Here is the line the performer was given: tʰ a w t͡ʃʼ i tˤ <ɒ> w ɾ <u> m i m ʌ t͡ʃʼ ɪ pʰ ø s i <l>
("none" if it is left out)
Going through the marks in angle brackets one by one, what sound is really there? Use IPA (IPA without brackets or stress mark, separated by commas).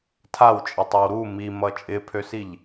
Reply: ʌ, u, ʎ